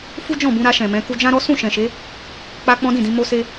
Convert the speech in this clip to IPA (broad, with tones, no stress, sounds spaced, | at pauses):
f u˦ d͡ʒ ɔ̃˦˨ b ũ˧ ɾ a˧ ʃ ɛ̃˨ m ɛ̃˨˦ k u˧ d͡ʒ ã˦ ɾ ɔ˦ s ũ˦˨ ʃ ɛ̃˨ ʃ e˨˦ | k͡p a˦ k͡p ɔ̃˦ d ĩ˦˨ d ĩ˧ m o˦ s e˦